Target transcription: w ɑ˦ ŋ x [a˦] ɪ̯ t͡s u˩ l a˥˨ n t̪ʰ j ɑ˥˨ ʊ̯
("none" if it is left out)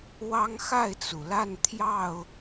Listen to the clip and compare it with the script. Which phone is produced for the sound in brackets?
a˥˨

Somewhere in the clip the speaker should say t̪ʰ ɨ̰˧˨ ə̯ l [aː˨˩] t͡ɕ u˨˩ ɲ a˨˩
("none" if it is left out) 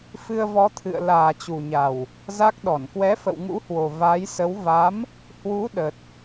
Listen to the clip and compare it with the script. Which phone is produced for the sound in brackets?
aː˨˩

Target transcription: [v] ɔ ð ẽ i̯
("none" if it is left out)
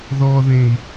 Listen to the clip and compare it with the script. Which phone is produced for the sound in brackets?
ð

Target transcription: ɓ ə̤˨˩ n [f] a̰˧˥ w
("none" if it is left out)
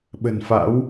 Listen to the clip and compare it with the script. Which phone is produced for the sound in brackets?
f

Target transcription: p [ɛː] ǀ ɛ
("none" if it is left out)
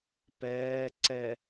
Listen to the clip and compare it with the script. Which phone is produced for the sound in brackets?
ɛː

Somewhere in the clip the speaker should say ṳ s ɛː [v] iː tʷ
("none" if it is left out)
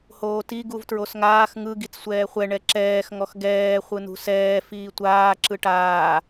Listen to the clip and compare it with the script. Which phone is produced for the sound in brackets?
f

